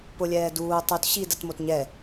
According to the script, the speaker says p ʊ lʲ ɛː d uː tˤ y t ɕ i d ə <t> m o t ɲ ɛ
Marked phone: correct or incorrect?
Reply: correct